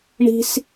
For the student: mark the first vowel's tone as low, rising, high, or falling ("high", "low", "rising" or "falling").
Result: high